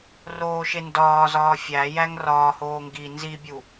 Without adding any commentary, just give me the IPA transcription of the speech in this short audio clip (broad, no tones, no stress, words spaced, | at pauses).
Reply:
roːʃendɒːzɒː fʲæjæŋ rɒːhoː ŋɡi nzibʲu